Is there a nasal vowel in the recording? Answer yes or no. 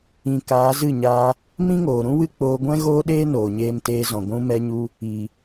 yes